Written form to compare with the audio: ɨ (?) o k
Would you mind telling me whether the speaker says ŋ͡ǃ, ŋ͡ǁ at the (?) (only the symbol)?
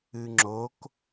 ŋ͡ǁ